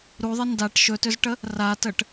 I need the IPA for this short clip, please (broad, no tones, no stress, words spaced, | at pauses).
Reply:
ɾuðˤə ndaʈ ʃɵtʏzʈə | ratəʈ